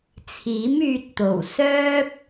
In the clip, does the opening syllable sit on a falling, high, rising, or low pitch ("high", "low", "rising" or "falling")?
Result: rising